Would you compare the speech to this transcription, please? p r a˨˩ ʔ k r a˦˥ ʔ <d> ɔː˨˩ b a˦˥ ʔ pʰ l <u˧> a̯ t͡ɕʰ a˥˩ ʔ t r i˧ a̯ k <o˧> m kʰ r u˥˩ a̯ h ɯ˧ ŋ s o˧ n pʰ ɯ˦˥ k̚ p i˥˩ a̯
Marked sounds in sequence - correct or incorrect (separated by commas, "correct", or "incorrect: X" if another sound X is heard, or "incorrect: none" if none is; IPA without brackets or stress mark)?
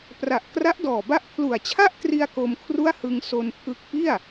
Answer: correct, incorrect: u˨˩, correct